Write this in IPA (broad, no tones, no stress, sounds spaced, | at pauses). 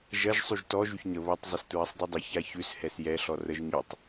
ʒ ɐ ʒ sˤ y ʒ t ɔ ʒ y ç ɲ ə β ʌ tˤ zˤ ɛ s t ɹ ɐ sˤ dˤ y dˤ ə ç a ç ʉ s h ɛ s j ɛ ɬ ɔ r ə ʒ ɲ y tˤ